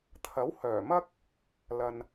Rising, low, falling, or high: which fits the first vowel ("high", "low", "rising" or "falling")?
rising